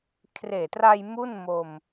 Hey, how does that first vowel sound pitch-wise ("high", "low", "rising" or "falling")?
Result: low